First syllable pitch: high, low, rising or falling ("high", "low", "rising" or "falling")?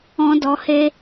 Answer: high